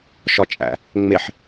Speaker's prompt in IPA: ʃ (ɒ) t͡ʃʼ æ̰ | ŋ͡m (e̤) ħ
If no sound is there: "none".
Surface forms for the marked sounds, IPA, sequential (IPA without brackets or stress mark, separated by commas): ɒ, e